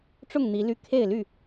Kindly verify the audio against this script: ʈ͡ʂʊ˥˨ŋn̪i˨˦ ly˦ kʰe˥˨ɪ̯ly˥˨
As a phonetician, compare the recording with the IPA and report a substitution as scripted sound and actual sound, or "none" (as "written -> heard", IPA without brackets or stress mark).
none